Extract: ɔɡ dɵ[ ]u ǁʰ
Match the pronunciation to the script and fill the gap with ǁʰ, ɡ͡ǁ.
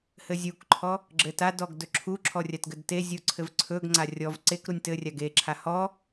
ǁʰ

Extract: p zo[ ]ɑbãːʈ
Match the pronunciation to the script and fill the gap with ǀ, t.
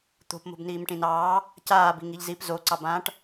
ǀ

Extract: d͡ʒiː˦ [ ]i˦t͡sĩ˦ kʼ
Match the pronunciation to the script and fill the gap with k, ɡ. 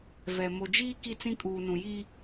k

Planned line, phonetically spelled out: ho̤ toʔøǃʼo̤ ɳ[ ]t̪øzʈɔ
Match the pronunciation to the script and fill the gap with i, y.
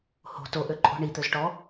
i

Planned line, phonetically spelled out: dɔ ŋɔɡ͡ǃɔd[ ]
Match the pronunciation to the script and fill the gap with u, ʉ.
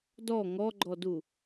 u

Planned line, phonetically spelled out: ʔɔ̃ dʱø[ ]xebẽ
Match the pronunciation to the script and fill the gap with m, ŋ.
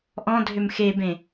m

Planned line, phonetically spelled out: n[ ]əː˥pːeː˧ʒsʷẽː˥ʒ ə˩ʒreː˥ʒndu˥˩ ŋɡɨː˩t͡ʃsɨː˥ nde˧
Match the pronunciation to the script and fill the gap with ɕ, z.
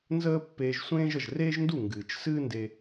z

